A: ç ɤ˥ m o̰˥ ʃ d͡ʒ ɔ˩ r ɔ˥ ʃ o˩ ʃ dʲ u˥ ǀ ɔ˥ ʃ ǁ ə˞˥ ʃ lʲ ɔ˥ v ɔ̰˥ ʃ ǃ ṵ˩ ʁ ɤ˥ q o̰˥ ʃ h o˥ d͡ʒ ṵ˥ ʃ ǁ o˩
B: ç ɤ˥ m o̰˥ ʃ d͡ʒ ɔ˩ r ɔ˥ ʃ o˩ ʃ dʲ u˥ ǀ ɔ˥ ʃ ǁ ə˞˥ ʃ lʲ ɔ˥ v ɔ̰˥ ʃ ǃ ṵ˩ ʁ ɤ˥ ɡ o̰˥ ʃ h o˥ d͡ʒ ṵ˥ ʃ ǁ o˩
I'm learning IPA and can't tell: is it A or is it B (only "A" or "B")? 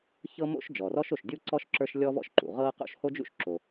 A